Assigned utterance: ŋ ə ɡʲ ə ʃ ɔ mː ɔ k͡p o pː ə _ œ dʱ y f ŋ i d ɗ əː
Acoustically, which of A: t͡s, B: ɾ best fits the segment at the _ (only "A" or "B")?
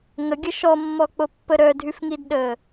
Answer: B